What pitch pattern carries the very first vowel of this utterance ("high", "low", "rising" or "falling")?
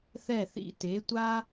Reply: falling